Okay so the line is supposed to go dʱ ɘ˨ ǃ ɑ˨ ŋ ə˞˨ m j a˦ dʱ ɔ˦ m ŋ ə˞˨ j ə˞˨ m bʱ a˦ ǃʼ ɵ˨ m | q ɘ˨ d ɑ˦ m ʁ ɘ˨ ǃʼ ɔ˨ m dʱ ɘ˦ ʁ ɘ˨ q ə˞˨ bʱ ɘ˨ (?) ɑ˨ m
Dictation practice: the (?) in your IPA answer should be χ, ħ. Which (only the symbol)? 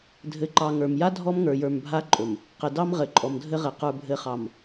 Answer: χ